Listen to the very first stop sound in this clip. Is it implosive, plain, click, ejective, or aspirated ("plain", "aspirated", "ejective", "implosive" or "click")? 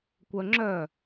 plain